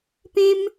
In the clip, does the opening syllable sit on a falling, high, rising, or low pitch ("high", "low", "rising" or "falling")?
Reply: high